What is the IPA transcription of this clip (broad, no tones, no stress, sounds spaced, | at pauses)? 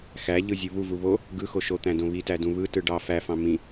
x æ ʎ ɯ zʲ u β u v u β o | ɡ ɯ x o ʃ o t̪ æ̃ d õ β i t æ d ũ β ɯ t ɯ ɖ ɑ f æ f ɑ̃ m ĩ